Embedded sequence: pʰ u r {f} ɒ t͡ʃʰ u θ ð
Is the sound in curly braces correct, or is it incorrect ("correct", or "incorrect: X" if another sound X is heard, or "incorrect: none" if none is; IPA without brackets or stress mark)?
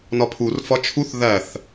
correct